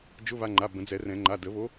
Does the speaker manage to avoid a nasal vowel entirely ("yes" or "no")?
no